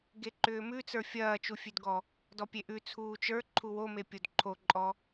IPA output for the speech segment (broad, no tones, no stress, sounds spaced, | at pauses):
ɡ e ǃ ʏː m ʉ t͡s ə˞ fʲ ɐː t͡ʃ u fʲ ʉ d ɡ ɔ | d ɔ pʲ e ʔ ʉ t͡sʰ uː t͡ʃ ə˞ ǃʰ u w o m e pʲ o d ǃʰ o ǃʼ ɔ